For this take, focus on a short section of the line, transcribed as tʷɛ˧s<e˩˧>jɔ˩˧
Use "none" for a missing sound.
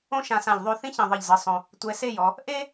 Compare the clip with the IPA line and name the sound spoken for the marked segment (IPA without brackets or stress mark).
e˥˧